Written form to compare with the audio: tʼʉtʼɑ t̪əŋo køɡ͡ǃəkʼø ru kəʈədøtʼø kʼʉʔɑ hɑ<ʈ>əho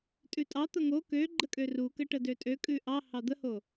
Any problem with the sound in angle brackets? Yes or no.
yes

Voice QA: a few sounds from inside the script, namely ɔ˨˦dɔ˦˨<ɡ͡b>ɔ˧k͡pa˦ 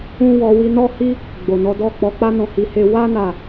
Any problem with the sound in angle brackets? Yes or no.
yes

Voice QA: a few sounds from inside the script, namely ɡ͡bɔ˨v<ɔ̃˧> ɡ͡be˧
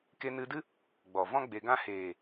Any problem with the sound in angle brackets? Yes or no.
yes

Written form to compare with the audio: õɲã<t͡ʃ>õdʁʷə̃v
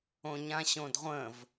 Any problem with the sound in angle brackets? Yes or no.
yes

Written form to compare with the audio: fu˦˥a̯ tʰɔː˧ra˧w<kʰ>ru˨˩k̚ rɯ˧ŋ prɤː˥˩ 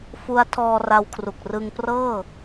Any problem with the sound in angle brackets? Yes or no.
no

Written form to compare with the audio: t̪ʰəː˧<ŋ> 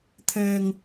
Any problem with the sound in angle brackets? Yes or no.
no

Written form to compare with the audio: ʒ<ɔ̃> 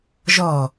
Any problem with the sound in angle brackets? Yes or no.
yes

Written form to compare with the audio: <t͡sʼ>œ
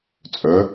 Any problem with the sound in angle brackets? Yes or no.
no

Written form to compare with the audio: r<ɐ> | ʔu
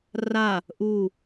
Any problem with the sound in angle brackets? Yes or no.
yes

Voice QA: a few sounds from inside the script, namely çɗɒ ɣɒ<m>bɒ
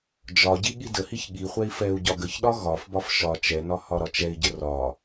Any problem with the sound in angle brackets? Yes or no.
yes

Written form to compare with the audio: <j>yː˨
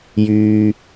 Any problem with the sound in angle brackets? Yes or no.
no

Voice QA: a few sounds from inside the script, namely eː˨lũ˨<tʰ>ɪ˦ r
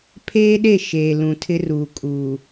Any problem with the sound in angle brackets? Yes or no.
no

